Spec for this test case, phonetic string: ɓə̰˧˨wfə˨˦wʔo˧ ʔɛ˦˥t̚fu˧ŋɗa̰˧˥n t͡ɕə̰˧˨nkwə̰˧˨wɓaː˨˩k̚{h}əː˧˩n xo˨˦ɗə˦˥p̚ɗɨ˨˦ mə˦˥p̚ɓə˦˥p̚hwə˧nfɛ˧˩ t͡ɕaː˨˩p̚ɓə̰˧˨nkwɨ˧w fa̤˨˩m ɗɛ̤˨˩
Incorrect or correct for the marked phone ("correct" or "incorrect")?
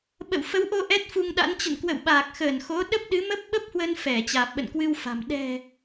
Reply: incorrect